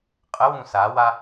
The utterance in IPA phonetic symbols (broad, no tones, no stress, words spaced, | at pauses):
qʼəwũ sawa